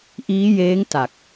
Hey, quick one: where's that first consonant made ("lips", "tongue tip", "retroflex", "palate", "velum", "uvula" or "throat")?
throat